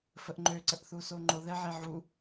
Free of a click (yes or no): no